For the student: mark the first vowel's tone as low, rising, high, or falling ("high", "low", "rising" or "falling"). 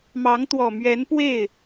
rising